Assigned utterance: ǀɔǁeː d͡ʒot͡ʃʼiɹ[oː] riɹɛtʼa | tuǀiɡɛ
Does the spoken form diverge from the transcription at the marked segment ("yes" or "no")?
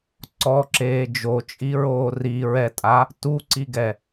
no